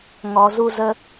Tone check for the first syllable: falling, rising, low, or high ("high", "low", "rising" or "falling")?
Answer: low